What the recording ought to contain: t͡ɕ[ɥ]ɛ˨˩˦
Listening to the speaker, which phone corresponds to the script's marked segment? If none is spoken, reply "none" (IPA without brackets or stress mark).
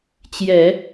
j